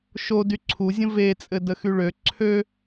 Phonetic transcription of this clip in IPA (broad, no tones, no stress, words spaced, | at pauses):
ʃo dyǀʰuzʲə̃ vet͡sʼɘ dəxyɭø ǀʰø